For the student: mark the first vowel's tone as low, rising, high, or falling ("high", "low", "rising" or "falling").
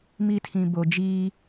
high